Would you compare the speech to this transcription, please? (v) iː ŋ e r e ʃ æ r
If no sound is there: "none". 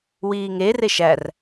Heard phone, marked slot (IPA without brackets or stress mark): w